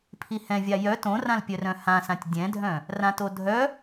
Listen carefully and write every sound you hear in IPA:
pʰ i h ɛ̃ vʲ a j œ t õ r ã l pʲ œ r œ̃ h ã s ã tʲ dʲ ɛ̃ dʱ œ̃ | r ã t o dʱ œ

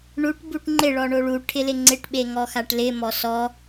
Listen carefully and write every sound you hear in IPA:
ɳ u ʈ b u ʈ ŋ͡ǃ ɪ ɭ ɔ ɳ o ɭ u ʈʰ ɪ l ɪ ŋ͡ǀ ɪ ʈ ɓ e ŋ ɔ x a ʈ l ɪ m ɔ s ɔ

